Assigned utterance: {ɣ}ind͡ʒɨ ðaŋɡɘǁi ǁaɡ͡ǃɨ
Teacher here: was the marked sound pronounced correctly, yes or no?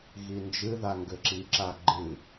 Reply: yes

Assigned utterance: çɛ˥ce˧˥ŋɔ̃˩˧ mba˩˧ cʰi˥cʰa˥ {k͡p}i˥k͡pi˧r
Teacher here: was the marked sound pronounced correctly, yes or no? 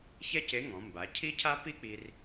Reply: no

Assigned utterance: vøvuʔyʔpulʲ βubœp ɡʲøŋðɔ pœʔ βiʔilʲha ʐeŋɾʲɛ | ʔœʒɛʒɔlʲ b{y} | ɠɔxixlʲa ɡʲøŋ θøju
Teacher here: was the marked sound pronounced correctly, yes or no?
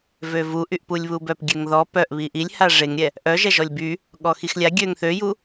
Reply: yes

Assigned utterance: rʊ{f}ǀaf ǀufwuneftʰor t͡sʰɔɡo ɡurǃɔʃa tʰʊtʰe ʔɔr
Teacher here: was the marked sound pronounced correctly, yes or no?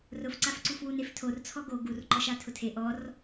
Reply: yes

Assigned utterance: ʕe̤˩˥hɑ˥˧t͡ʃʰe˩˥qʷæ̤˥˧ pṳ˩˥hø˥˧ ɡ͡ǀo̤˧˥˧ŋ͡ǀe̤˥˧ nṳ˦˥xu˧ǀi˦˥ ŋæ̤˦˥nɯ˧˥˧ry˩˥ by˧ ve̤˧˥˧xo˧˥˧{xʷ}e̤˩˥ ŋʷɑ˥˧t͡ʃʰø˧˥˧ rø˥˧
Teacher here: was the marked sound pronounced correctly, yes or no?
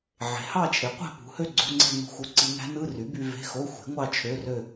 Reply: yes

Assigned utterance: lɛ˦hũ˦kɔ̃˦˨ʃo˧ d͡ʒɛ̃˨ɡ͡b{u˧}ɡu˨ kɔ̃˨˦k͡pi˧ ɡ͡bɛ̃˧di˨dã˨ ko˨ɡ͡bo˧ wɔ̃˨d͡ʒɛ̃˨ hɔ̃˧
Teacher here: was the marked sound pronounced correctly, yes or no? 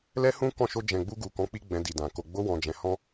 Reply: yes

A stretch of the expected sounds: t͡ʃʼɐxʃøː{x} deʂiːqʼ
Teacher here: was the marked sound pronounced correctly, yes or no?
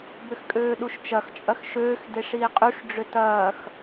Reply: yes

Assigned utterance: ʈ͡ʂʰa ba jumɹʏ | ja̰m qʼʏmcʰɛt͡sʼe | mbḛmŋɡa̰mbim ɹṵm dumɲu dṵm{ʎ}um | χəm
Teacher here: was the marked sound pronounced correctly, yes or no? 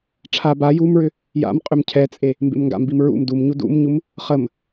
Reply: no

